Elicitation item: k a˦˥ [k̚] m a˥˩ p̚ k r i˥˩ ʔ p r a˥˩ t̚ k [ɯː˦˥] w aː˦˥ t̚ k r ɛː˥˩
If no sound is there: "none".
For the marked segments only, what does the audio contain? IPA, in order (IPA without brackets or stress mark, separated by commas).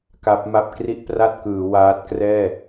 p̚, ɯː˩˦